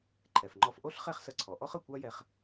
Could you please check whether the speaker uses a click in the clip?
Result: yes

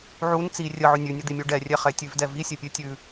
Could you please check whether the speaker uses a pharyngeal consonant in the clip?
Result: yes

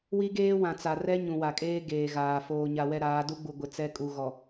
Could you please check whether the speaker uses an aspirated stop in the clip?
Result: no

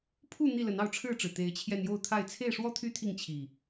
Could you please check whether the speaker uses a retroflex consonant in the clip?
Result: yes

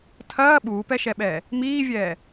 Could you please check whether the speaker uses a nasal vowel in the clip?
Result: no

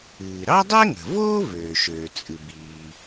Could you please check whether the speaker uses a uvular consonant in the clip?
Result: no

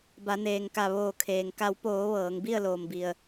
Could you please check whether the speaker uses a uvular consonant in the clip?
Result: no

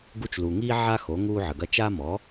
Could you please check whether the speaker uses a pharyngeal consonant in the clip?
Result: yes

